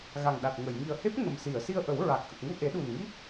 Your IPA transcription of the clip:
ɣ a˨˩ ŋ ɗ a˨˩ t̚ ŋ ə˨˩˨ j ŋ i˨˩ ə̯ h e˦˥ p̚ ŋ ə˨˩ m s i˨˩˨ ə̯ s i˧ ə̯ ʔ ə˨˩˦ w ɹ a˨˩ k̚ ʔ ə˨˩ k̚ ŋ u˧ ʔ e˨˩˦ ɗ u˨˩ n ŋ i˦˥ k̚

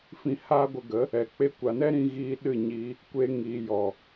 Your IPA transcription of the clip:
f ĩ˧ h aː˦ ɡʷ ə˧ ɡ ə˨˦ | ɛ˨ k͡p e˧ kʷ a˨ n ɛ˦ ɾ ĩ˧ ɣ iː˧ ɗ ɨ˦˨ ɲ iː˧ | kʷ e˧ ŋ iː˨ j ɔ˨

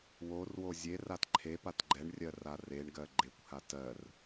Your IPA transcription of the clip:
w o r w o zʲ e r a t ǃʰ e p a t ɡ͡ǃ ɛ ɳ rʲ ɜ r a r e ɳ ɡ ɜ ɡ͡ǃ e kʷ h a t ɜ r

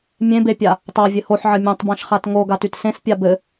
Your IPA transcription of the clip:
mʲ ẽ b e pʲ a | tˤ a vʲ ɘ h o ħ ʕ ɘ mʲ õ tˤ b ã ʃ χ a t ŋ o ɡ a t y t s ẽ s pʲ a b ɘ

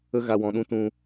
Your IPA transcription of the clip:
ə˦ ɣ a˧ w ɔ̃˧ ɗ ũ˦ t ũ˦

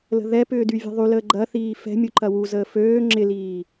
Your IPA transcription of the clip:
l ə̤ ð ɛ p ʏː d y vʲ ɛ̤ ðˤ y l əː ɡ͡ǃ ɐ θ iː f ɛ̤ mʲ u ǃ ɐ w u z əː f øː ŋ͡ǁ ɪ l iː

